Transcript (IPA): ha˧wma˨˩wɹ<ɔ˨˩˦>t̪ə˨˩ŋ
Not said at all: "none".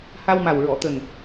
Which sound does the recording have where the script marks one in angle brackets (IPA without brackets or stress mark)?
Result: ɔ˨˩˨